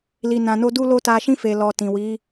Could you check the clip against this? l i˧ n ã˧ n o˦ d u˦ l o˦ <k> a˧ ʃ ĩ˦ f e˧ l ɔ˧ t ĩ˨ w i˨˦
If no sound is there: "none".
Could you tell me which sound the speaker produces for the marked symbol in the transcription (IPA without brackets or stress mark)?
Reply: t